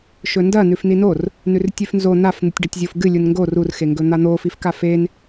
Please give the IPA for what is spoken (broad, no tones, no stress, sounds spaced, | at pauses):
ʃ ɵ n d ɐ n ʉ f n i n o r | n ʉ r tʲ ʉ f n z o n a f n̪ ɨ tʲ ɖ ɐ tʲ zʲ o f ɡ ɨ lʲ u n ŋ ɡ o r u r x e ŋ ɡ ɵ n̪ a n̪ o f i f k a f e n